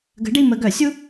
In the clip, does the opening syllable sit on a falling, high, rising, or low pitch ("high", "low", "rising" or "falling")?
rising